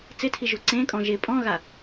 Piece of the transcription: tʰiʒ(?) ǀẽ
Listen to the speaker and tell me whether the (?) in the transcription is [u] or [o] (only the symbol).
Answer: u